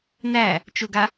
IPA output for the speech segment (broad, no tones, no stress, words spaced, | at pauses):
næ | t͡ʃʊɡa